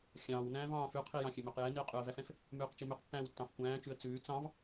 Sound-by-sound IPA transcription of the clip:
xʲɑ̃ːw næ̃ːvɑ̃ːfʉqʰi jɑ̃xʲømøqjɛ niə̯qʼʉə̯væfɛ̃f | mʉːqt͡ʃimʉq pːæ̃ːwtːɑ̃fkʷæ̃ːt͡ʃʉə̯ t͡sʉː t͡sɑ̃v

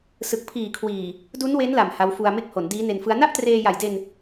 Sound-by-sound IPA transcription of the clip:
sɯ˨˩k̚pʰiː˨˩kʰwiː˨˩ | du˦˥nwe˦˥nla˨˩m ha˦˥w fu˧a̯me˥˩k̚ho˩˦n diː˦˥ne˧nfɯ˦˥a̯ na˥˩ʔtreː˧ja˨˩jde˧n

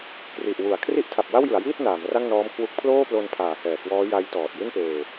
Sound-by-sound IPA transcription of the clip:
kri˨˩ʔwu˩˦a̯ kʰri˦˥ʔtʰa˨˩p̚ wa˥˩wjɯ˩˦a̯jiː˥˩t̚ naː˩˦m ra˥˩ŋnɔː˦˥mkʰwu˦˥k̚ pʰloː˥˩plo˧npʰaː˩˦ hɛː˨˩kwɔː˦˥ ja˦˥jtɔː˨˩t̚ji˥˩npeː˧

